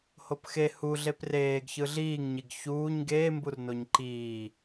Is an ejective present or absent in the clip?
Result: absent